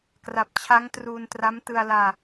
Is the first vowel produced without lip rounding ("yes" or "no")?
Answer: yes